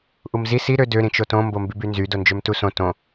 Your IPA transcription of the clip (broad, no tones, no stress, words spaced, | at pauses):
ʔumzi si ɾø dø ɾĩt͡ʃotõ mbombybynzy dond͡ʒømtusõ tõ